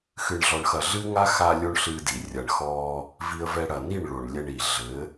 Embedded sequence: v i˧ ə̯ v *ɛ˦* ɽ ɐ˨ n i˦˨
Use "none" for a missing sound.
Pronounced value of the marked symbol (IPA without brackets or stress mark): ɛ˧